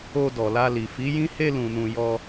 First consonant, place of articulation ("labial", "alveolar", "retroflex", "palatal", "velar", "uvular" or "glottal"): alveolar